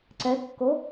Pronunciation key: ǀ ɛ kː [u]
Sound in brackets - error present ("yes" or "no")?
yes